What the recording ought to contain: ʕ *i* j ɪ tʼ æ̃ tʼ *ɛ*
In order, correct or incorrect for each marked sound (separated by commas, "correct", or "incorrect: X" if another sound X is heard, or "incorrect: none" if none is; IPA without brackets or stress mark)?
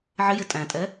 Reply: incorrect: ɪ, correct